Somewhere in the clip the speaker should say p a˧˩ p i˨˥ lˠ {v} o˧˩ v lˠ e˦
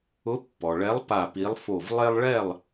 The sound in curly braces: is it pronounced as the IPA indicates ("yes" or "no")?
no